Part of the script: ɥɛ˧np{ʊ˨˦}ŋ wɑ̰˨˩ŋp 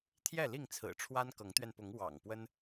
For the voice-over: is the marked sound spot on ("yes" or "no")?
yes